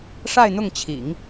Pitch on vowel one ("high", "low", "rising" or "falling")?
falling